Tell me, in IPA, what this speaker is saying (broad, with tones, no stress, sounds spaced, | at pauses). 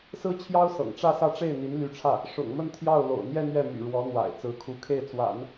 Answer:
s ɹ̩˥ t͡ɕʰ j ɑ˥ ʊ̯ s ɤ̰˨˩ ŋ ʈ͡ʂ ä˥˧ s ä˥˧ ʈ͡ʂ e˥˩ ɪ̯ n̪ i˧˥ n l y˧˥ ʈ͡ʂʰ ä˥˩ | ʂ ʊ̰˨˩ ŋ m ə˥˧ n t̪ʰ j ɑ˥˩ ʊ̯ l o̰˨˩ ʊ̯ n̪ j ɛ˥˧ n̪ ɥ ɛ˥˩ m y̰˨˩ ɻ w ɔ˧˥ n̪ w a̰˨˩ ɪ̯ t͡s ɹ̩˧˥ kʰ u˧˥ kʰ e˥˩ ɪ̯ t͡s w a̰˨˩˦ n